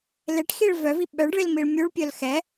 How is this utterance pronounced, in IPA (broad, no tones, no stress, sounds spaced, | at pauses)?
l e ʈ x i ɭ v œ v i ɓ œ ɖ ɭ i l m i ɭ mʲ u ɭ pʲ œ l x ɛ